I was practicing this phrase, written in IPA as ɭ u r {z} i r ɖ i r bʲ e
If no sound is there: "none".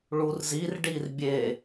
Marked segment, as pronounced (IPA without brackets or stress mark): z